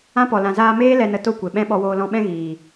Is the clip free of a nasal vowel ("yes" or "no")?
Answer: no